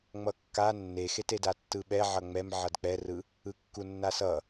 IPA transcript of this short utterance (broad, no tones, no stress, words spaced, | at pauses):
ŋ͡mʌkːa nːexeteda tːɯɓɛ ʕʌŋ͡mɛm ʕʌdk͡pɛrɯ | ɯkːunːasʌ